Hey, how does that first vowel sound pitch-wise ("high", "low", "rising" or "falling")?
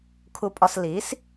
high